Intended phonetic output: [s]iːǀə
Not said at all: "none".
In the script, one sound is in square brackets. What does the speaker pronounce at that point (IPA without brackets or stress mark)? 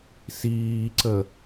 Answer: s